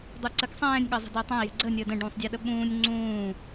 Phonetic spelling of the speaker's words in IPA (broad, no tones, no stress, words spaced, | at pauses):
dˤuǀək sˤɛ̃ːnʲ ɠəːzˤɛ̤dəːtˤɛ̃i̯ jɛ̤ɡ͡ǀəː nʲəːdə̃ ɖũːsˤdʲɛɗəɓũːnʲ ŋ͡ǀũː